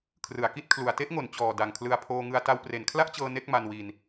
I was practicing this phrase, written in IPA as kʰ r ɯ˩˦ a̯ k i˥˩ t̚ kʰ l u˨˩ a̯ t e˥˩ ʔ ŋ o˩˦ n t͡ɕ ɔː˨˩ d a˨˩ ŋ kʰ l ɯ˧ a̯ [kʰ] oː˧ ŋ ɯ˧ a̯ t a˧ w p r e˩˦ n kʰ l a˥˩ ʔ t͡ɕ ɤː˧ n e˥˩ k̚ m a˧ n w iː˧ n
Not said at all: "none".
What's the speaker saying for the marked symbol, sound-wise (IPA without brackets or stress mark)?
pʰ